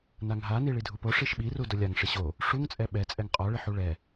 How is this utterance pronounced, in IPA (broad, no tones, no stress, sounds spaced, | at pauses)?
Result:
n a ŋ ɦ a n i ɭ i dʱ u p o ʂ i ʃ ɓ i r u d ʊ lʲ a ŋ ʂ ɪ ɕ o | ʂ u ŋ t͡sʼ ɛ ɓ ɛ t͡sʼ ɛ ŋ qʼ ɔ ɭ ɪ ħ u ɭ ɛ